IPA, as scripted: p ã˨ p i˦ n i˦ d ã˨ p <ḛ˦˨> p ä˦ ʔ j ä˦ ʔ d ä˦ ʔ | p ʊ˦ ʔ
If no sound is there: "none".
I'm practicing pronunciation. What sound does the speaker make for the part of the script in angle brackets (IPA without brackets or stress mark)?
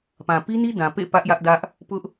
ḛ˦˨